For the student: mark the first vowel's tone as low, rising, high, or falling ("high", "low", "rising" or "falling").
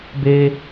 high